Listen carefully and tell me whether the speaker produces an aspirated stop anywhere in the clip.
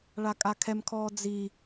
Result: yes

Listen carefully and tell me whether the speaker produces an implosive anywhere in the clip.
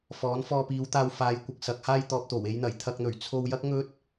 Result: no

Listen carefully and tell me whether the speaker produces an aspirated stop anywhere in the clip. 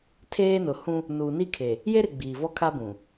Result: yes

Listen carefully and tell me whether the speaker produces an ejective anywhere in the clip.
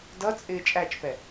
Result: yes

